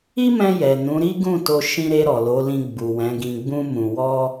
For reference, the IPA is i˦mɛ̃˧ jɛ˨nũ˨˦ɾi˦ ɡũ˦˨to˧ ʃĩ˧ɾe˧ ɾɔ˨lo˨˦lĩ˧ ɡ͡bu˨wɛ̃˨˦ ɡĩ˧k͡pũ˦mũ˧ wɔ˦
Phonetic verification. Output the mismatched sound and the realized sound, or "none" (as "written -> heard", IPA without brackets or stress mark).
k͡p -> ɡ͡b